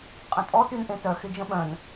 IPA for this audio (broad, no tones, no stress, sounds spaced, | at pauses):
qʼ ə̃ tʼ ɔ t y n ʔ ẽ t œ x ɪ d͡ʒ ə̃ ɓ œ̃ n